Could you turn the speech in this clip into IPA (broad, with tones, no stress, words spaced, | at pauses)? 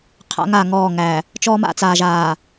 qʰa̰˦ŋa˦˨ŋɔː˦˨ ŋæ˨ | t͡ʃɔː˦ma̰˦t͡saː˨ ʒaː˨